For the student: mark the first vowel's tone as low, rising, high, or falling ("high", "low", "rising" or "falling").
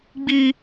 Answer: high